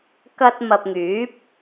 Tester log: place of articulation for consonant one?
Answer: velar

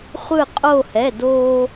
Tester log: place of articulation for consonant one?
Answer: uvular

